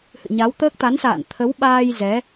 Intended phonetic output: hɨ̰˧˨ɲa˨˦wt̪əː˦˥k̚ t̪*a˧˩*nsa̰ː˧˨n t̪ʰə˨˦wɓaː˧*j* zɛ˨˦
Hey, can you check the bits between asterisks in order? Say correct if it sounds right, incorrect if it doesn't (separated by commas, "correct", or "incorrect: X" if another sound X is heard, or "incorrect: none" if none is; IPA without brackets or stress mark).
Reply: incorrect: a˨˦, correct